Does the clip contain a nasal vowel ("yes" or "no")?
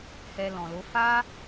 yes